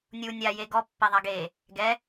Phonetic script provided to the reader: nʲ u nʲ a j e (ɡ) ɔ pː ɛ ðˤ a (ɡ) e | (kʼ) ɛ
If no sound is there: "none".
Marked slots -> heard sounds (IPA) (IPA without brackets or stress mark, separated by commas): ɡ, ɡ, ɡ